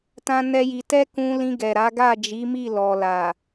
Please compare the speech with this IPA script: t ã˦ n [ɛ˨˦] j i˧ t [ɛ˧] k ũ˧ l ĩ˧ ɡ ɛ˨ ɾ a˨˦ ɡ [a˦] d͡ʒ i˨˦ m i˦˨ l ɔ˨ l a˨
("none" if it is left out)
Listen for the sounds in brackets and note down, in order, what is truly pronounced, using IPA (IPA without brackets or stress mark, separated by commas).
ɛ˦, ɛ˦, a˦˨